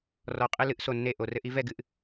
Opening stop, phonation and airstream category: ejective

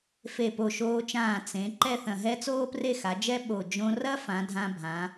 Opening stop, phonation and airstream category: plain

